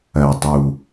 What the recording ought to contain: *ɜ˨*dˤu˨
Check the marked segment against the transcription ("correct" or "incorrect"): correct